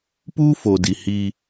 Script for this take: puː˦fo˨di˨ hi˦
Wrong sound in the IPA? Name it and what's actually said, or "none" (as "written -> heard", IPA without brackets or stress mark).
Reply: none